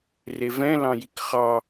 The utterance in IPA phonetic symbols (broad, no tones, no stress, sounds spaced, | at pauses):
r e v ɛ̃ l ɑ̃ j i k χ ɑ